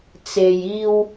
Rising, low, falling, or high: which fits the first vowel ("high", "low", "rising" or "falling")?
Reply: low